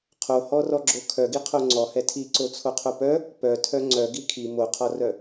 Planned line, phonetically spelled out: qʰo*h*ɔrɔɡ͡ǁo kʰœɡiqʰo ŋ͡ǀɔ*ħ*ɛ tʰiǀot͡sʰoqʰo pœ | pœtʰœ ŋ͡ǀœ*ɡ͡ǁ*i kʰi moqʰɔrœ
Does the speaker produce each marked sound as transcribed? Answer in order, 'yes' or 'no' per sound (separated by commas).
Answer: yes, no, no